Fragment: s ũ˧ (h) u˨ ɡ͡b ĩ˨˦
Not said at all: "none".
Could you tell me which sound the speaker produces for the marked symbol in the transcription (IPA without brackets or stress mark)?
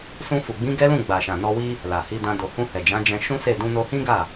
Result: f